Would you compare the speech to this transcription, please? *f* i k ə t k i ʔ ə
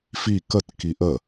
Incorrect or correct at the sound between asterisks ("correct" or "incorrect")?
correct